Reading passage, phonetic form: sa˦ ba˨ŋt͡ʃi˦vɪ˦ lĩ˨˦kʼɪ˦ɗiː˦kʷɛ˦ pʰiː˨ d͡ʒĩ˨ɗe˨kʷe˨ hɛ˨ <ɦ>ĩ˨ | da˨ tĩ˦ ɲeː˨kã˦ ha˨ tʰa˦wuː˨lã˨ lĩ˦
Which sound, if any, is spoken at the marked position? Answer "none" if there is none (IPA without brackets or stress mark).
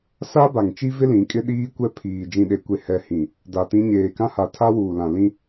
h